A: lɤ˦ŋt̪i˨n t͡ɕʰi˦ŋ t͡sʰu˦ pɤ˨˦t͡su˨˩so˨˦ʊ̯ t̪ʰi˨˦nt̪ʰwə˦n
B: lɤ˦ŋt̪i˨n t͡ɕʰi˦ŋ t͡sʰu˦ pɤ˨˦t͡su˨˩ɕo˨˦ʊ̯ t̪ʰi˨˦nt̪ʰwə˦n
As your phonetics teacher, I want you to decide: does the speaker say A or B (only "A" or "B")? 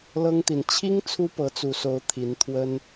A